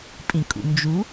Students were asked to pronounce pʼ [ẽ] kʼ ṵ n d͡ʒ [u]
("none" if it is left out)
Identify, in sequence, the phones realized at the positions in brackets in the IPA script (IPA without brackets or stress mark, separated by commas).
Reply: ĩ, u